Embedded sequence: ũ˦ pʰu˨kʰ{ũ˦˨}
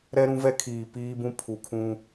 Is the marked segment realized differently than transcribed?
yes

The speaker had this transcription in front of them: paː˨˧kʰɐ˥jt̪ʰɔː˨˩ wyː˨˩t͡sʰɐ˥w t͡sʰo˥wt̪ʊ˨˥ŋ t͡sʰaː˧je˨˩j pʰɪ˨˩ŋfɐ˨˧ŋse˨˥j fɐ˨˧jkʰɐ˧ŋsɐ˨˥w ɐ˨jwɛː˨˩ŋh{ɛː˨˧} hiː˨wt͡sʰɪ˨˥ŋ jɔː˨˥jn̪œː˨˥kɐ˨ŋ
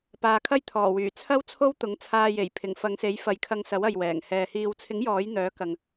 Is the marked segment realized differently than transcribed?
yes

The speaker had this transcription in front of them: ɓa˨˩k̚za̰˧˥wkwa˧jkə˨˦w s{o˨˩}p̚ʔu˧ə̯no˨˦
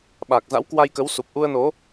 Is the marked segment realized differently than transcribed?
yes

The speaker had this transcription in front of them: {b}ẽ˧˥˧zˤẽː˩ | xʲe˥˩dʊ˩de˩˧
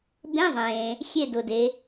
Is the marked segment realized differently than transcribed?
no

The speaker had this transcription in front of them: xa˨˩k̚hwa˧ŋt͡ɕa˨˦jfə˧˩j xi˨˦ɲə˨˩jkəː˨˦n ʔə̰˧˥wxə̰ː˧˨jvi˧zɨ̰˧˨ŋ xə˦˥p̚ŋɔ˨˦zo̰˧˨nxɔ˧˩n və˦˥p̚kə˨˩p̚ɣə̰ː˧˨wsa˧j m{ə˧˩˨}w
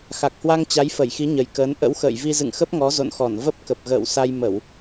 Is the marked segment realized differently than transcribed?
no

